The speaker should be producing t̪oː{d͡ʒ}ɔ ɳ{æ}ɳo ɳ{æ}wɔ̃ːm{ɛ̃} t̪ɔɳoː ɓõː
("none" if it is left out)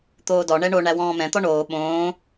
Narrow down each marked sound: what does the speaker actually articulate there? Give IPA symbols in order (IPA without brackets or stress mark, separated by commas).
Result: d, ɛ, æ, ɛ̃